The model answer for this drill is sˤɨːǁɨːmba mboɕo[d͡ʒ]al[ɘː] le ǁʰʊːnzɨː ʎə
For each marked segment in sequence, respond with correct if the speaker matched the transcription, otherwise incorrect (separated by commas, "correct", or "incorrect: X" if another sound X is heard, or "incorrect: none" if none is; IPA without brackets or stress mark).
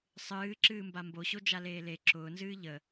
correct, incorrect: eː